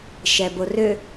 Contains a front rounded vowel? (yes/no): yes